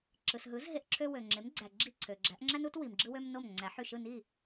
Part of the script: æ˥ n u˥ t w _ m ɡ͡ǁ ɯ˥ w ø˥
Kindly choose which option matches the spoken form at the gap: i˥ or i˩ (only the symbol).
i˩